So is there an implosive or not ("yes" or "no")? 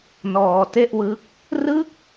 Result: no